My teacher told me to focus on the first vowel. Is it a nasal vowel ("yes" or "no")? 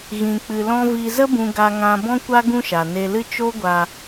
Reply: yes